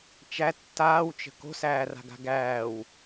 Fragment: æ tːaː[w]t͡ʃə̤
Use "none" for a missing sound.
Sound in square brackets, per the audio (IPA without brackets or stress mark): w